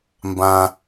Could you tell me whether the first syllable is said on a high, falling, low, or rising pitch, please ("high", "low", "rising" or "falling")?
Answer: low